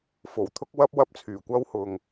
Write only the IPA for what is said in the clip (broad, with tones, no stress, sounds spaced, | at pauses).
f o˨˩ w t̪ʰ ʊ˥ k̚ w ɐ˥ p̚ w ɐ˥ p̚ t͡sʰ yː˨˩ kʷ ɐ˥ w h ʊ˧ ŋ